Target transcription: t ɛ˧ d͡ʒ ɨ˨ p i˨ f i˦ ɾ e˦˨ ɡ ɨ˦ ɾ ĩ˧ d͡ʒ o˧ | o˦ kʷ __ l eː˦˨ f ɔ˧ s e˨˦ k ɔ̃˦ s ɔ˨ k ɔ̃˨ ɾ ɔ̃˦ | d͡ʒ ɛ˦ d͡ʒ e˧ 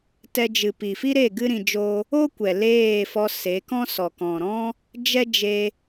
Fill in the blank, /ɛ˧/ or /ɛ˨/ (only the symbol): ɛ˨